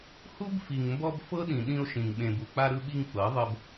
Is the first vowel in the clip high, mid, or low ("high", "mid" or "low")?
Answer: high